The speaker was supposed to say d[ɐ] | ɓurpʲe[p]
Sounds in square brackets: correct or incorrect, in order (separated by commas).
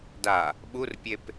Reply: incorrect, correct